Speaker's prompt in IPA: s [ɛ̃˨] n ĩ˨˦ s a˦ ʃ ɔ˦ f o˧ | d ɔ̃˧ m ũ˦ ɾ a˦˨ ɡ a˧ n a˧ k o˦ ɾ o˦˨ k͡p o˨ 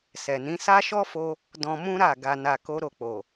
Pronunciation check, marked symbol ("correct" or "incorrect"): incorrect